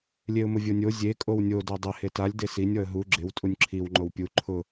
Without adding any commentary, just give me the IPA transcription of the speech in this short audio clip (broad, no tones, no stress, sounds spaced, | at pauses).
lʲ e ʊ̯ m ʊ vʲ o nʲ o zʲ e kʼ o w nʲ o d o dˤ ɪ h e t a lʲ d e s i nʲ ɔ ə̯ ɦ u ɡ͡ǁ ɪ w tʼ u nʲ ǁʰ i w ŋ͡ǃ o w pʲ u ǃʰ ʊ